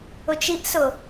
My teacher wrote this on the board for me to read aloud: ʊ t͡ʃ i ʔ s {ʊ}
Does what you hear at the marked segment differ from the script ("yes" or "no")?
no